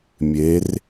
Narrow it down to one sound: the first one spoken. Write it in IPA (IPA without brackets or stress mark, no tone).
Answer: mʲ